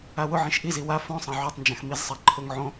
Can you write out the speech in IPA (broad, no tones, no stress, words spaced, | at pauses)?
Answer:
awʊʕĩʃ ʔizi wa fõsˤã ʕotˤnd͡ʒãx mizsˤa ǃʰʊŋ ʕõ